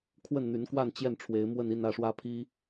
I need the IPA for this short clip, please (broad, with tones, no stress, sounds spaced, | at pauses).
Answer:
kʰ w ə˥˩ n n̪ y˧˥ n k w a˥˧ n t͡ɕ j ɛ˥˩ n ʈ͡ʂʰ w e˧˥ ɪ̯ m w ə˥˧ n i˥˧ n ä˥˩ ʂ w ä˥ pʰ i˥